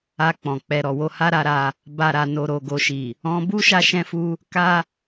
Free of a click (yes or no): yes